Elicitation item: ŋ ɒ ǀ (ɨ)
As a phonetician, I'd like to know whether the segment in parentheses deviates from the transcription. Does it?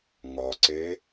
yes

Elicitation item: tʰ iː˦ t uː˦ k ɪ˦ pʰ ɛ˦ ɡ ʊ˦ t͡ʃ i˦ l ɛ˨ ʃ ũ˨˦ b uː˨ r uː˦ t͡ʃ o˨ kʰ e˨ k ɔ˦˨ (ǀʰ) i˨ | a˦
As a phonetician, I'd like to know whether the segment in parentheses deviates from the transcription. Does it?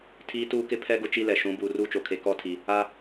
yes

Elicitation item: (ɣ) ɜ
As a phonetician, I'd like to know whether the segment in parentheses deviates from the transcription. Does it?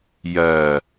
yes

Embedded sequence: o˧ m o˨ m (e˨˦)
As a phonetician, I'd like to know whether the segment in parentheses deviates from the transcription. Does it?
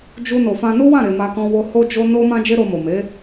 no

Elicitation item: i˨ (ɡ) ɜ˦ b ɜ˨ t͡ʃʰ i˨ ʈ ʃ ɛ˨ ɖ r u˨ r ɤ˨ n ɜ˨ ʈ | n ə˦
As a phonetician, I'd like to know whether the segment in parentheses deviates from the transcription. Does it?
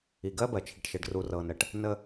no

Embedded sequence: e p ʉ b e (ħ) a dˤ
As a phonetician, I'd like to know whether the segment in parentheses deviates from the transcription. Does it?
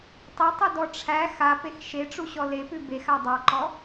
yes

